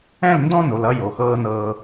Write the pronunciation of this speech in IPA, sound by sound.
ɛ̃˦˨ l n d ɔ̃˦ n o˨ l ʌ˦ j o˨ x ɤː˦ n ɤː˦

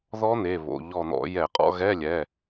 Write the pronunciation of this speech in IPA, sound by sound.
ð ɔ˦˥ n̪ e˩˧˩ β o̰˩˧˩ ʎ ɔ˧˩ n̪ ɔ̰˧˩˧ j ɛ˧˩˧ qʼ ɔ̰˧˥˧ ɣ ɛ˧˥˧ lʲ ɛ˩˧˩

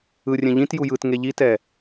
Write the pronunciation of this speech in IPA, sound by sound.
ɯ rʲ ɛ̃ ʎ ĩ t j u j ɯ t ŋ e ʎ i t ɛ

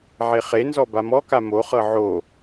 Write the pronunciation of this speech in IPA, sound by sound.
ʕ e χ e n z ɔ b a m ɔ k a m o χ ɤ ʕ o

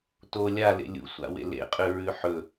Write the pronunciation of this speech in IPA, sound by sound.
t o lʲ a l ḛ lʲ ṵ sʷ a̰ w ḛ l ḛ qʼ ʉ ɹ ʉ ħ ɵ

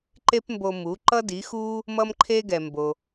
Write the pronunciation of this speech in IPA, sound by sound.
ǃ e˥ p m b o˧ m u˩˥ ǃ ʌ˥ d i˩˥ x u˥ | m ʌ˥ m ǃʰ e˥ ɡ ɛ˩ m b o˩

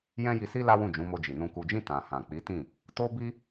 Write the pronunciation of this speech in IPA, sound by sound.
j ɛ̃˦ j i˧ s i˦ l a˦ w ũ˦˨ d͡ʒ ũ˨˦ m o˧ d͡ʒ i˨ n ũ˨ k u˨ d͡ʒ ĩ˧ t ã˨ h ã˨ k͡p i˨˦ t ĩ˦˨ | t o˦ b i˦

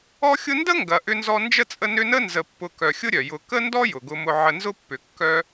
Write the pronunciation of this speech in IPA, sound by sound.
ɔ˦ xʲ ʊ˦ n d ə˥ ŋ ɡ ɐ˨ ʔ ʏ˦ n z ɔ˦ n d͡ʒ ə˥ t͡sʼ ə˦ n ʏ˦ n ə˥ n z ə˨ pː ʊ˨ k œ˩ xʲ ʊ˦ ɾʲ œ˩ j ʊ˨ k ə˥ n d ɔ˥ j ʊ˩ ɡ ʊ˨ m ʊ˨ ʕ ə˨ n z ʊ˦ pː ʏ˩ kː œ˦

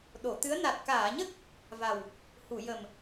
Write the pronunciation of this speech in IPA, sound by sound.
ɗ o˨˩˨ t̪ ɨ˧˥ ə̯ n a˨˩ t̚ k aː˨˩˨ ɲ ə˦˥ k̚ | v a˨˩ w | h u˨˩˨ j ə˨˩ m

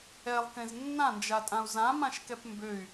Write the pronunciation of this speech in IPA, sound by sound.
ɛ lˠ k ẽ z nː ã n d͡ʒ a tʼ ã u̯ z ã m ã ʃ k ɛ p m b ø y̯

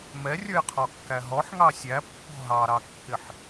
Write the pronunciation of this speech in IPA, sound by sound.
m ɛ rʲ ə˞ j qʰ ɔ kː æ ɦ ɔ ħ ŋ ɑ sʲ æ pː ɔ̤ ɦ ɑ ɾ ɑ kː ɪ ħ

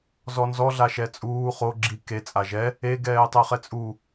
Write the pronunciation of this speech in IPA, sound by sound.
z ɔ n z ɔ ɮ a ʃ ɛ t͡sʼ uː χ o ɡ͡ǁ i k e t͡sʼ a ʒ ɛ | e ɡ ɛː tˤ ɛ χ ɛ t͡sʼ u

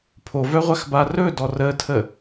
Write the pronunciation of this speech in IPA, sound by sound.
pʰ o v œ ʁʷ a x b a r ɵ d ɔ r ə tʰ ə

